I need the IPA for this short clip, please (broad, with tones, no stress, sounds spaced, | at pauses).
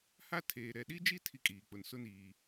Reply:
h a˦ tʰ eː˨ ɾ ɛ˨ ɗ i˦ d͡ʒ i˦ tʰ i˦ kʼ iː˨ k͡p ʊ˨ n s ʊ˦ n iː˨